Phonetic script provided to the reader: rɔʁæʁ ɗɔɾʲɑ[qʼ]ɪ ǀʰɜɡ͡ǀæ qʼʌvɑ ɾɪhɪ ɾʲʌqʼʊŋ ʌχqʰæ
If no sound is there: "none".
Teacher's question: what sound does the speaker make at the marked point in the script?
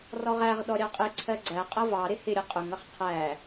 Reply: qʼ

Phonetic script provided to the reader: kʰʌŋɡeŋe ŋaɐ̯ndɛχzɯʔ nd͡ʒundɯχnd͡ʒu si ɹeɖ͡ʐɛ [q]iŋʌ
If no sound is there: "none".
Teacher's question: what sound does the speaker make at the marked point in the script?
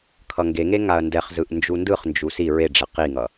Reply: q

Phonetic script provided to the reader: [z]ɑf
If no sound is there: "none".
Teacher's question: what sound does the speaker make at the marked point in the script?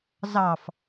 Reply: z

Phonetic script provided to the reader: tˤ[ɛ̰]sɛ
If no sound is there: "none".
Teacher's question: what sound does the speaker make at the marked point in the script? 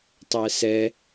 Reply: ɛ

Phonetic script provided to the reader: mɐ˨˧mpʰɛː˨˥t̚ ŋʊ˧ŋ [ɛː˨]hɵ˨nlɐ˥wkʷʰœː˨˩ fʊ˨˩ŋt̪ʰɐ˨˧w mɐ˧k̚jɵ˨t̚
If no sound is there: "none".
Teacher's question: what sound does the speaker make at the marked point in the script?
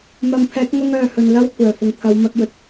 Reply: œː˨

